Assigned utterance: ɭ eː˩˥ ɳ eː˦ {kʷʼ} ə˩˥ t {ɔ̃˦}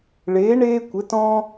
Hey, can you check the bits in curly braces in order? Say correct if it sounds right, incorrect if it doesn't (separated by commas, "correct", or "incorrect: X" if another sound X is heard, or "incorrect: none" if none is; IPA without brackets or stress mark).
incorrect: kʷ, correct